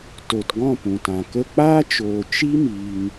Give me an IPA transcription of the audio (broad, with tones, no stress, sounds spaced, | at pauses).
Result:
t o˨ t ɡ ɔ̃˦˨ p ũ˨ t ã˨ k ə˦ k͡p aː˦ t͡ʃ oː˨ t͡ʃ i˦ m iː˧ ŋ